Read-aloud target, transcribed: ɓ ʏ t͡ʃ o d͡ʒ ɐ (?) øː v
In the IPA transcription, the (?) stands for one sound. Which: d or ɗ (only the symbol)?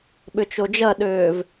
ɗ